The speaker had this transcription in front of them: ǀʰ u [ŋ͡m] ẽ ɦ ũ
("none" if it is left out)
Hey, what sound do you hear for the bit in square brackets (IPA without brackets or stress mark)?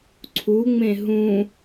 ŋ͡m